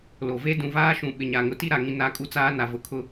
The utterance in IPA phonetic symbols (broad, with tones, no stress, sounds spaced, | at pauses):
l o˨ v e˦ d ũ˨ v aː˦ ʃ ũ˨ ɓ ɪ˨ ɲ a˨ ŋ ʊ˨ t i˦˨ ɾ a˨ ŋ ĩ˨ n a˨˦ kʼ u˦ t͡s aː˦ n a˨ v ʊ˨ kʰ ʊ˦